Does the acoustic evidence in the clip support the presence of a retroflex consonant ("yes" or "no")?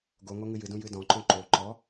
no